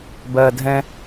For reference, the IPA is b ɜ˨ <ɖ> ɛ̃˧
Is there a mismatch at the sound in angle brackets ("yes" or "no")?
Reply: yes